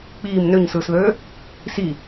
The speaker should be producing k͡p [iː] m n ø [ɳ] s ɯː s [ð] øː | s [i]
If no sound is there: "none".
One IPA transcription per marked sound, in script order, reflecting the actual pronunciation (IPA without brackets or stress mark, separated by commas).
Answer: iː, ɲ, ð, i